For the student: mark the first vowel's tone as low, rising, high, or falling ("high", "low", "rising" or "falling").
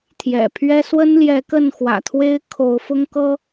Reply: low